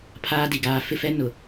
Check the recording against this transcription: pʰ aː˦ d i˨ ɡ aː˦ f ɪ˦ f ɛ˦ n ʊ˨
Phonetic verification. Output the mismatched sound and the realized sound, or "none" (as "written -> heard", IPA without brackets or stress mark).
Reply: none